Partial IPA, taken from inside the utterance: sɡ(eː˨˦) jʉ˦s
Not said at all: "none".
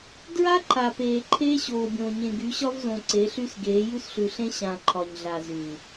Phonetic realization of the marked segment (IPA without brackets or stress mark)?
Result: eː˨˦